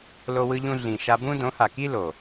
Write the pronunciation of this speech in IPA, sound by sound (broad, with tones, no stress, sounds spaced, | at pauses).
l o˧ w ɯ˧ ʎ ũ˧ ɮ ĩ˨ ʃ a˧ b ũ˦ d õ˨˦ h a˨ k i˦ l o˨